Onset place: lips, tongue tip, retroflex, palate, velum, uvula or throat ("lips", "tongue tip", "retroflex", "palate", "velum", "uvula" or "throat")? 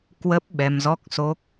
velum